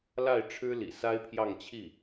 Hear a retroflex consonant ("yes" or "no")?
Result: yes